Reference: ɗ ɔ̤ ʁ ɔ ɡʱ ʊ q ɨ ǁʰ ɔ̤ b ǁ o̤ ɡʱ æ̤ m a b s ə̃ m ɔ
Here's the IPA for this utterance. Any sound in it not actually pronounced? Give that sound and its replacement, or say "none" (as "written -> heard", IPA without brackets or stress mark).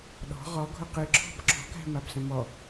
o̤ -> ɔ̤